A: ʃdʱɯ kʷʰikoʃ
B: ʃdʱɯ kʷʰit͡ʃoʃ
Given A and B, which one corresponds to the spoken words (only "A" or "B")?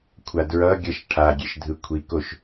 A